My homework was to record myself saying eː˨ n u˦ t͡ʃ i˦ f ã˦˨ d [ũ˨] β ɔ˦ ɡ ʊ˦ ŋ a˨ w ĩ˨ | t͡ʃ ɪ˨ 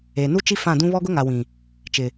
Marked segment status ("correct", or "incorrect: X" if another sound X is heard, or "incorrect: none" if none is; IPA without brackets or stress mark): incorrect: ũ˦